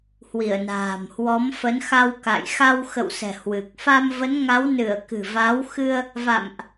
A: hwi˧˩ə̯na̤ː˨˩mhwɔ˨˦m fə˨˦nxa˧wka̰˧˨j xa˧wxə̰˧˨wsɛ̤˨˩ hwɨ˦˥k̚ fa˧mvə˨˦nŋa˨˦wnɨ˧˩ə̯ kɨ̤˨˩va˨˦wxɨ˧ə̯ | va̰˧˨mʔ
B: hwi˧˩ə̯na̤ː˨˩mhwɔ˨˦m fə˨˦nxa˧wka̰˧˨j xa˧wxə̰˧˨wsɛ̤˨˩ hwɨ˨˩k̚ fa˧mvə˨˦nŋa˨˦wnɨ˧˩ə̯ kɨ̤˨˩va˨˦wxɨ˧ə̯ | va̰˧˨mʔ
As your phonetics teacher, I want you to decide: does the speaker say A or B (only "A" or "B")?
B